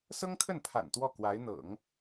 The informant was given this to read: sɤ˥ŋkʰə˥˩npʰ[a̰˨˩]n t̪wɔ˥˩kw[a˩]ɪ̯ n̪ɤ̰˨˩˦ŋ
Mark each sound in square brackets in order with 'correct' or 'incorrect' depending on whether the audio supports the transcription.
correct, incorrect: a˧˥

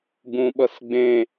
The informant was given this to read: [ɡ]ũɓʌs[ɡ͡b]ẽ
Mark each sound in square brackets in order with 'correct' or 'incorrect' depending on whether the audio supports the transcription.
correct, correct

